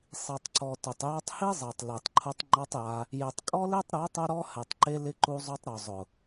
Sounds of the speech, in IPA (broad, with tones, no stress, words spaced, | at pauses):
sˤi˨tˤǀɔ˨ tʊ˨tˤjɔ˧tˤ hi˦zˤɛ˨tˤle˨tˤǃʰʊ˧tˤ ŋ͡ǃɔ˧tˤ ja˧ | je˨tˤkʼɔ˦le˦tˤ ɾu˨˦tˤʊ˧ɾɔ˧ hɛ˨tˤǃe˧ lɪ˧ǃu˧zˤo˧tˤɾo˨ zˤʊ˨